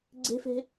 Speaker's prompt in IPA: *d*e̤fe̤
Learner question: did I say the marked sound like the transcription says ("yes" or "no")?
no